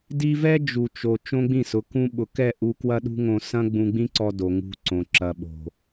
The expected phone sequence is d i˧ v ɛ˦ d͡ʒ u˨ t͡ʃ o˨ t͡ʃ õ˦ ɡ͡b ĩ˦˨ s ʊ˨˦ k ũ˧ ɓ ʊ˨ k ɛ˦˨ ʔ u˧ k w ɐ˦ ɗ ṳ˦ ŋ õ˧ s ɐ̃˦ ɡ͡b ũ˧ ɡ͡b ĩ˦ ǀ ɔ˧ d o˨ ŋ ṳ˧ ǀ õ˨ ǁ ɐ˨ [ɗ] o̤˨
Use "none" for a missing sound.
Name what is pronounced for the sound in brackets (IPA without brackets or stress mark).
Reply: ɓ